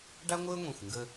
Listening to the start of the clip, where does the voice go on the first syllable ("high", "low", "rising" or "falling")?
high